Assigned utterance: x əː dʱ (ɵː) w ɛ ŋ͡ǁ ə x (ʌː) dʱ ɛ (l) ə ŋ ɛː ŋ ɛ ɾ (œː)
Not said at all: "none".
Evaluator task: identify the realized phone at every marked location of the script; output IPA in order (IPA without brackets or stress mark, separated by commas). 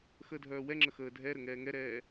œː, əː, ɾ, ɛː